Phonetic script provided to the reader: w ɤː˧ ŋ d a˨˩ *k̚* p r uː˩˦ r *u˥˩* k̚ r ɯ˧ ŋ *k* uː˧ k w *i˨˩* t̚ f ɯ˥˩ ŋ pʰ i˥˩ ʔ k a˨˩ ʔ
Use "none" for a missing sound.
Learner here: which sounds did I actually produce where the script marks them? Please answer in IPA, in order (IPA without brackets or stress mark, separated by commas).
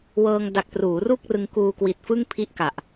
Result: k̚, u˥˩, k, i˨˩